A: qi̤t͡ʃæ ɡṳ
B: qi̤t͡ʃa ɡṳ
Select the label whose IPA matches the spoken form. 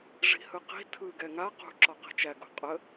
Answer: A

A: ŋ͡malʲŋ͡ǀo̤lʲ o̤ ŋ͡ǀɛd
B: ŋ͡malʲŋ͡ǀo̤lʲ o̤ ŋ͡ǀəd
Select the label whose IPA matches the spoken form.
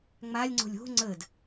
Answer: B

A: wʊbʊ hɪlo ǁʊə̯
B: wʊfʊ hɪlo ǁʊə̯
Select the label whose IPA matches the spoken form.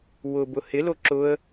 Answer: A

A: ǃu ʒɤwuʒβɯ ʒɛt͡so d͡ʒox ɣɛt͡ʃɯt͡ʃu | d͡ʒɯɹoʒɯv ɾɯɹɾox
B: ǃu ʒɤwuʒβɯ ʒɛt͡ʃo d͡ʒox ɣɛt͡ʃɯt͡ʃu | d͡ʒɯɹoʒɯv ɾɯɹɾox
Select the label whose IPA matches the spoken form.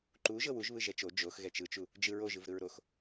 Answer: B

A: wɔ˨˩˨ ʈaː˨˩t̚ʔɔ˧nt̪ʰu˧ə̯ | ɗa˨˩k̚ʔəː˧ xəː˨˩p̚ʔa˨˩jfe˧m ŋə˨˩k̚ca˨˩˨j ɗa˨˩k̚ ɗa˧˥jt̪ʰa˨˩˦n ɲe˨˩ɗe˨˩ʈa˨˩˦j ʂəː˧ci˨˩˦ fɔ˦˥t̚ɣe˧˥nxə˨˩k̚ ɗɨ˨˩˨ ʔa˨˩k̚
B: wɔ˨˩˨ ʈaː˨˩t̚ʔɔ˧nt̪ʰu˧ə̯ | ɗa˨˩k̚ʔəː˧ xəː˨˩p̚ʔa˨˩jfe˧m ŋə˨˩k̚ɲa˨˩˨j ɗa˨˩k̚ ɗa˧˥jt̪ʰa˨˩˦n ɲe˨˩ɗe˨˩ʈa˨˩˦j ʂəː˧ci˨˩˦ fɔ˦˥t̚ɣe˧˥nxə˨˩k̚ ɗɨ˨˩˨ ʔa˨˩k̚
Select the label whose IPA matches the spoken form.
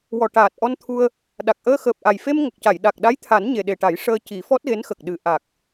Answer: A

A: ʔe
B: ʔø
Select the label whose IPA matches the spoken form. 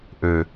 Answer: B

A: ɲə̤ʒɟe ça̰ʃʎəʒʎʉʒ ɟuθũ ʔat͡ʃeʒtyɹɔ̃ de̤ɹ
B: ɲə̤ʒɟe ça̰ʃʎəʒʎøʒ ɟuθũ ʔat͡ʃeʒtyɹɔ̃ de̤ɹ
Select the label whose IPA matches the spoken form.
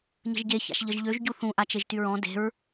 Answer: B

